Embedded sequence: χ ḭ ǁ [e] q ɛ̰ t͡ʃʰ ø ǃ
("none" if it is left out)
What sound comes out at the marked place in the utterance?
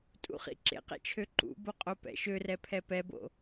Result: ḛ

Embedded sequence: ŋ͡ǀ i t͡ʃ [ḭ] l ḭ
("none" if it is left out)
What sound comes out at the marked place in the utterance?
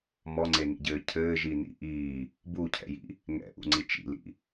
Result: ḭ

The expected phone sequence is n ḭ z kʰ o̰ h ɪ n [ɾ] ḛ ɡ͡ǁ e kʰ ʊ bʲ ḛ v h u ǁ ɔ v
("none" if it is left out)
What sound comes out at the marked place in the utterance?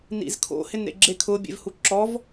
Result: ɾ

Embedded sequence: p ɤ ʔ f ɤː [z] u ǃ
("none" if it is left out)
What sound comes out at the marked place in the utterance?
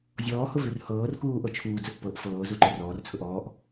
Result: z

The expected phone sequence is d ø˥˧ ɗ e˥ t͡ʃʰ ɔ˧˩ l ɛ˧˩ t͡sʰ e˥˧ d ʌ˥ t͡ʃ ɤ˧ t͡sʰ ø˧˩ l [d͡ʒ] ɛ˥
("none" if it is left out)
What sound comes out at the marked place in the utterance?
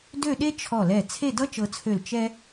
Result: t͡ʃ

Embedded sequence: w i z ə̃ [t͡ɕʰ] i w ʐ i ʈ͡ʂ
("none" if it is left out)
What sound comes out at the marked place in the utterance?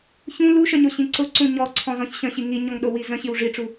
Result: ɕ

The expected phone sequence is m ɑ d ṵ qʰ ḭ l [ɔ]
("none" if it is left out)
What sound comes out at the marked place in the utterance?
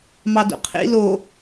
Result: o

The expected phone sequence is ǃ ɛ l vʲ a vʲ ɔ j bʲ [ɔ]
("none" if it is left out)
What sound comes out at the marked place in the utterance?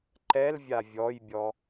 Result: ɔ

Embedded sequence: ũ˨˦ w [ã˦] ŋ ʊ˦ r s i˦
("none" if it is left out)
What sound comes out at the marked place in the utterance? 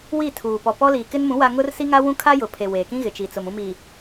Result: a˦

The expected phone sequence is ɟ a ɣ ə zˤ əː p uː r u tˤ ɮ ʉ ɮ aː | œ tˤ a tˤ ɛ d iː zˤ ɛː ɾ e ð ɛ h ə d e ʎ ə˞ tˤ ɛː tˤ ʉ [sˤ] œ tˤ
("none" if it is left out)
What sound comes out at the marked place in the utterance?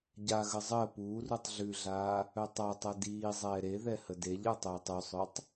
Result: sˤ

